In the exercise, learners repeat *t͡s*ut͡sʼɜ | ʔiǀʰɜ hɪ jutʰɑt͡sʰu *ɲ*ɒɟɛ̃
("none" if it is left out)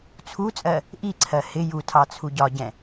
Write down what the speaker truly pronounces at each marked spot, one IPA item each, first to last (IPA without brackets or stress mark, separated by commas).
t͡sʰ, ɟ